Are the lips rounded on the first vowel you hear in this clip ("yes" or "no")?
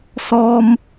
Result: yes